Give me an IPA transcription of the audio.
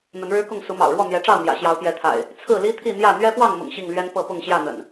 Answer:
n̪ə˨˦nɻɻ̩˦kʊ˥˨ŋ su˨˦mɑ̰˨˩ʊ̯ɻwɔ˥˨ n̪jɛ˨˦ʈ͡ʂɑ˥˨ʊ̯ n̪jä̰˨˩ɕjɑ˨˦ʊ̯pjɛ˨˦t̪ʰa̰˨˩ɪ̯ | t͡sʰɹ̩˥˨li˦ t̪ʰi˥˨n̪jä˥˨ n̪ɥɛ˦pwɑ˥˨ŋmʊ̰˨˩ŋ ɕi˥˨ŋlɥɛ˦n pɤ˥˨pʊ˥˨ŋɕjä˥˨n̪ə̰˨˩n

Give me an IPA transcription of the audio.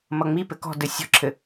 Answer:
mʌŋ͡mi pɘkɔ̤dɘ sʲɔ̤ǁʰɘ

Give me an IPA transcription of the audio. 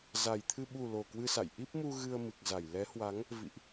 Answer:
za˨˩jt̪ʰɨ˧ ɓu˨˩ lo˨˩kwɨ˧sa̰˧˨j ʔi˦˥p̚mu˧ ɣɨ˧ə̯mɨ˨˩k̚za˧˩j lɛ˨˦hwa˨˦ŋ | vḭ˧˨ʔ

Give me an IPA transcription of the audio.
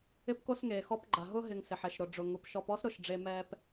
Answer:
ɪ˦pko˦sŋeː˩xɔ˦p ɡ͡ǃa˩ɦʊ˥ɦɪ˨ŋ sɪ˩ħɛ˩ʃ ɾʊ˨ ɖ͡ʐʊ˨ŋu˨pʃɔ˦p ɔ˥sɾʊ˨ʃ ɖ͡ʐe˦ mɛ˥p

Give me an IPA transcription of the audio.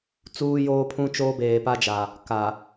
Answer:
t͡suː˦joː˦pʰũ˦t͡ʃoː˦ beː˨pa˦d͡ʒa˨ | ka˨

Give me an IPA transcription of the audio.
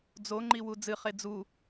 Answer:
d͡zoŋ͡ǃiwu d͡zɨχe d͡zu

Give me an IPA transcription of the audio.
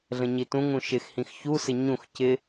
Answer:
ɮə̃ɲitũŋũ ʃɪxhĩx çusɪ ɲũx cɪ

